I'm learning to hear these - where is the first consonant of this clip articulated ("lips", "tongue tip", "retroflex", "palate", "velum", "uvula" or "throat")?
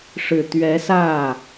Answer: retroflex